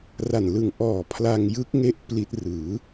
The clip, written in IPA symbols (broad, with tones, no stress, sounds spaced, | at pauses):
r a˨˩ n l ɯ˨˩ ŋ ʔ ɔː˨˩ pʰ l a˧ ŋ j ɯ˦˥ k̚ ŋ e˦˥ ʔ p l i˦˥ t̚ r ɯː˩˦